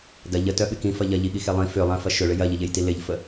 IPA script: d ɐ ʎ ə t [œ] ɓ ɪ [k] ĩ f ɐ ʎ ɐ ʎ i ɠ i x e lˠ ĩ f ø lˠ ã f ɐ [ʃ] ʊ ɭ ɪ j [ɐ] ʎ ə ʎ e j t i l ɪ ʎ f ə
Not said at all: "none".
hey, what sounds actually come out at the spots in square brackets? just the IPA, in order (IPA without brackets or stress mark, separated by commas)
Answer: œ, k, ʃ, ɐ